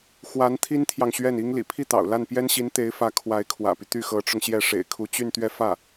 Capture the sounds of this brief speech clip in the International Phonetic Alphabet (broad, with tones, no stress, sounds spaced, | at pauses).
x w a˧˥ n t̪ʰ i˥ n t̪ʰ j ɑ˨ ŋ ɕ ɥ ɛ˥˩ n i˥ ŋ l ḭ˨˩ pʰ i˥˩ t̪ ɑ̰˨˩ ʊ̯ l a˥˩ n p j ɛ˥ n ɕ i˧˥ n t̪ e˧˥ ɪ̯ f ä˧˥ kʰ w a˧˥ ɪ̯ kʰ w ä̰˨˩ p y˦ t̪ y˥˩ x ɤ˧˥ ʈ͡ʂ ʊ˧ ŋ ɕ j ɛ˥˩ ʂ ḛ˨˩ ɪ̯ kʰ u˧˥ t͡ɕ y˥˧ n t̪ ɥ ɛ˥˧ f ä˥˩